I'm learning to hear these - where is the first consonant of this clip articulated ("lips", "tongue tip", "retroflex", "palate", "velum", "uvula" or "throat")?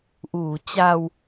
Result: throat